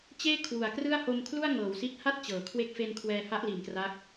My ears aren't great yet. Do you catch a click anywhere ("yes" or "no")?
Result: no